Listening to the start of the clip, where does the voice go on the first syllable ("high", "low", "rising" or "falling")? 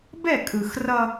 falling